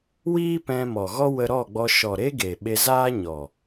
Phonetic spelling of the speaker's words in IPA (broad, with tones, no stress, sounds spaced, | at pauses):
w iː˦ p ɛ̃˧ m ɔ˨ ɣ ɔ˦ w ə˧ ɾ ɔ˦˨ ɡ͡b ɔ˧ ʃ ɔ˨ ɾ e˧ ɡ e˨ ɓ e˧ z aː˦ ɲ ɔ˨